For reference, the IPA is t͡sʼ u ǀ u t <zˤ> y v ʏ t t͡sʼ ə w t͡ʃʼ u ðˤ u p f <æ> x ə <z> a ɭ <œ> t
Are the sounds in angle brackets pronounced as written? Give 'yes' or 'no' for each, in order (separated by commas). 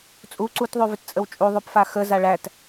no, no, yes, no